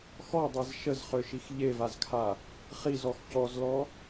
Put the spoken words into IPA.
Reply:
x ɔ dˤ ɛ z ʃ ə z χ ø ʃ i x ʎ e v a z kʰ a | χ i z ɔ x c ɔ z l ɔ

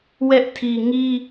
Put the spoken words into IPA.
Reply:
w ɛ˦ ʔ tʰ i˨ ŋ i˦

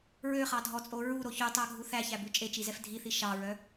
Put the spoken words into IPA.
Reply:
ɹ ø χ ɑ dʱ ɔ t͡sʼ o ɹ u ɾ o ç y tˤ æ ɡʱ u θ æ ç æ b ʉ t͡ʃʼ e t͡ʃ i z ɛ f dʱ i θ i ʃ ɑ ɹ œ

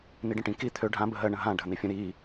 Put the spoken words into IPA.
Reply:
n i ɖ ə̃ ʈ ĩ k i t̪ʰ ø ɖʱ ã b ə ɦ ɜ ɳ ə̃ ɦ ã ɖʱ ə n̪ i fʲ ə̃ ɾ i

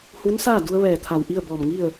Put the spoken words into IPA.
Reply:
h u˧˥ n s aː˥˨ d u˧ ə̯ ʋ ɛː˧˩ t̪ʰ a˧˩ w ʔ i˥˨ ə̯ b ɔː˧˩ m ŋ i˥˨ ə̯

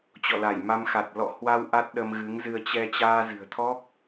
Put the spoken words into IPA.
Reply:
t͡ɕ ɔ̰˧˨ l a˧˩ j m a˧ m x a˨˩ t̚ l ɔ̰˧˨ h w a˧ w ʔ a˦˥ t̚ ɗ ə˧ m ɣ ɨ˨˦ ŋ z ɨ˧ ə̯ t͡ɕ ɛ˧ t͡ɕ aː˧ z ɨ̤˨˩ ə̯ t̪ʰ ɔ˦˥ k̚

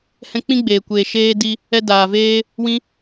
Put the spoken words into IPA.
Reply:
h ɛ̃˧ k͡p ĩ˦ ɡ͡b eː˨ kʷ eː˨ ʃ eː˦ d i˦ | ɛ˧ d aː˨ v eː˦ | w ĩ˦

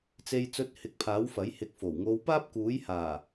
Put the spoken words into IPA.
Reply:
t͡s e˧ j t͡s ɵ˧ t̚ h ɪ˨ k̚ pʰ aː˨˥ w f ɐ˨˥ j h ɪ˨˥ k̚ f o˨˩ w ŋ o˨˧ w p aː˥ p̚ k uː˨˥ j h aː˨˩

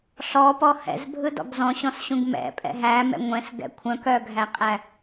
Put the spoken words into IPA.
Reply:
ɬ ɔ p ɔ h ɛ̰ z bʱ ɯ d ɔ̰ ɡ z ɔ̃ ɕ ɔ̃ s ɕ ũ ɡ m ɛ̰ pʼ ɛ̰ ɦ æ m ɛ̰ ŋʷ ɛ̃ s ɡ ɛ̰ kʷʰ œ̃ k œ ɡʱ æ qʼ æ

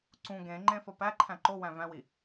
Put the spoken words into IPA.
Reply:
ǀ ũ ɡ ẽ ŋ͡ǃ ẽ f ɒ p æ ǃʰ æ̃ ǃ o w æ̃ v æ̃ w i

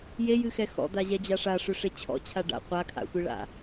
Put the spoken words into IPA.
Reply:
j e j ɨ x ɛ x ɔ̰ d̪ a ʑ ɛ d͡ʑ a ʂ a ʂ ø ʂ e t͡ɕʰ ɔ̰ t͡ɕʰ a ɖ a̰ qʷ a kʰ a̰ sʷ ɨ ɭ a̰

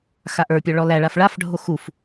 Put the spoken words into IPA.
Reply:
x a ʔ ə˞ pʲ ɔ ɭ ɔ l æ ɭ a f ɭ a f ɖʱ o x u f

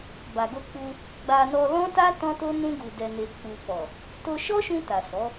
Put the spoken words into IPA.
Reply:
b a˨ ɡ o˧ k͡p u˧ | ɡ͡b a˧ n ɔ˧ l ɔ̃˦ t a˦ t ɔ̃˦ t o˦ n ũ˧ ɡ u˨ d ɛ˨ n e˨ k͡p u˨ k͡p ɔ˨ | t o˧ ʃ ɔ˦ ʃ ũ˧ t a˨ s ɔ˨˦

